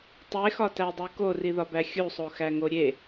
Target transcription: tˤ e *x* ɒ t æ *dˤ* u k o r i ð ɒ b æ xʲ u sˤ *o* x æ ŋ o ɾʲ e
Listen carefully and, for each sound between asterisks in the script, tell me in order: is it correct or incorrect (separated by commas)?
correct, correct, correct